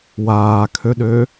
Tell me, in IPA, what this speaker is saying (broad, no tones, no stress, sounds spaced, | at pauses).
w aː kʰ ø ɗ ø